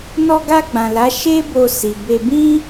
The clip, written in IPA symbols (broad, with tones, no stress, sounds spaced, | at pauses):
n ɔ˧ ɡ a˧ ɡ͡b ã˨ l a˨˦ ʃ e˦ b o˧ s i˨ b e˧ b ĩ˦